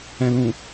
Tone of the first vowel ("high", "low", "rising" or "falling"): low